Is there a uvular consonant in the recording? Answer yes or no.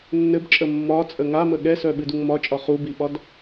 yes